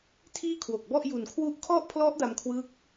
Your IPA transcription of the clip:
tʰ iː˥˩ kʰ w o˨˩ k̚ b ɔ˥˩ ʔ j u˨˩ n kʰ w u˦˥ ʔ kʰ ɔ˥˩ ʔ pʰ l ɔ˦˥ ʔ d a˧ m kʰ w ɯː˦˥ k̚

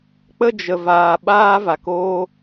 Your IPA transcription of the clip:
k͡p ə˦ d͡ʒ ə˨ v aː˨ ɓ aː˦ v a˨ k o˧

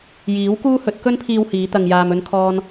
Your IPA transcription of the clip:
j iː˨˥ w k uː˥ h ɵ˨˥ t̚ k ɵ˥ n pʰ iː˧ w h iː˨˧ t̪ ɐ˧ ŋ j aː˧ m ɵ˥ n kʰ ɔː˥ n

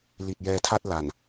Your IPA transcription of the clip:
l i˨˩ t̚ j ɛː˧ tʰ a˥˩ t̚ l a˨˩ n

